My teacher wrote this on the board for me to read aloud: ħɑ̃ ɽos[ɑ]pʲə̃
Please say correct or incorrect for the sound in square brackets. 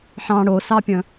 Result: correct